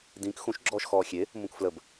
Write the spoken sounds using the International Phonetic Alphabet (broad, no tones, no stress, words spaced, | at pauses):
dĩk xũʃ ɡ͡ǁɔːʃxɔːxʲe | mũkfləb